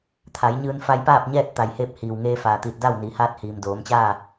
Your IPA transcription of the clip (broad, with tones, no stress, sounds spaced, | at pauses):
t̪ʰ a˩˧ j ɲ ɯː˧ n f a˧ j p aː˥˨ p̚ ɲ ɛː˥˨ t̚ t̪ a˩ j h eː˧ p̚ h iː˩ w ŋ eː˧ f aː˩ t̪ i˧˩ t̚ d a˥˨ w n i˩˧ h aː˧˥ t̚ h iː˩ m d oː˩˧ m t͡ɕ aː˥˨